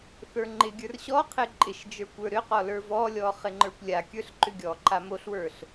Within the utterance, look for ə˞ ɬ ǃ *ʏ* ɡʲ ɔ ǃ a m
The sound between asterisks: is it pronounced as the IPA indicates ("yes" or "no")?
yes